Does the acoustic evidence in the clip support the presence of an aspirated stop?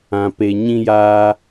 no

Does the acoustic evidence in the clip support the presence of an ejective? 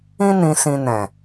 no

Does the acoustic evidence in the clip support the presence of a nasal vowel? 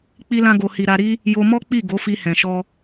yes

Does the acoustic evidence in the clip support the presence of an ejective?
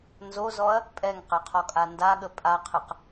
yes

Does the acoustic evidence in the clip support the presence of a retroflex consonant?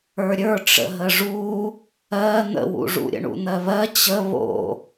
yes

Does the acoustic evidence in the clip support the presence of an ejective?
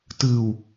no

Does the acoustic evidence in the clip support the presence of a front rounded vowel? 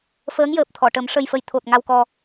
no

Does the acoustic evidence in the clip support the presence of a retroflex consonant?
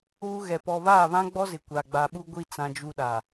no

